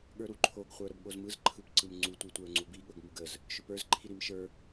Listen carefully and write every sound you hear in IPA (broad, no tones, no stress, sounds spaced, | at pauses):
ɠ ə˞ ɾ u ǃʰ o ɡ χʷ ə˞ ɾ ə b ɠ o z m ɯ z ǃʰ ɯ p ǀ ɯ m ŋ͡ǀ u tʷ i tʷ ə˞ ŋ͡ǀ u b i ɠ ɵ ɡ m u ɡ ə z | ʃ ɵ p ə˞ z ǃʰ i ɾ i m ʃ ə˞